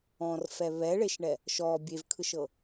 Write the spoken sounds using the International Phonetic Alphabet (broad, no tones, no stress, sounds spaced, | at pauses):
ɔ̃ r f ɛ β ɛ ɭ e ʃ ɳ ɛ | ʃ ɔ bʲ e v kʰ ɯ ʃ ɤ